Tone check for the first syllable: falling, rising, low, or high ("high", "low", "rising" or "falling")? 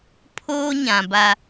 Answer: high